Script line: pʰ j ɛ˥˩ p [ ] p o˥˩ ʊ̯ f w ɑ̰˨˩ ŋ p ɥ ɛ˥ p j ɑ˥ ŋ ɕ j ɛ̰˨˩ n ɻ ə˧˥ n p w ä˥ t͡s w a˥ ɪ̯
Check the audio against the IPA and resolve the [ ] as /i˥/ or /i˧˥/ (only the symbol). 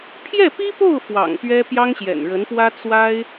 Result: i˥